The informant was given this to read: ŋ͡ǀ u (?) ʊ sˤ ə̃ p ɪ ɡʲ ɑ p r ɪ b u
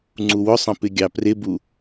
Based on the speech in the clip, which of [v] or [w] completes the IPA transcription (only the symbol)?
w